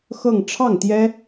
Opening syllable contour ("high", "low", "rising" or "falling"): falling